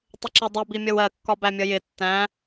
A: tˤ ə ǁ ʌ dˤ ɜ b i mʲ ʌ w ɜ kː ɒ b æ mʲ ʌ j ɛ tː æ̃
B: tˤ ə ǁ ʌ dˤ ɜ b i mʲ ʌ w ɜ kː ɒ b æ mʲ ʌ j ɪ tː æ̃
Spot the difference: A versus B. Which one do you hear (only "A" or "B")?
B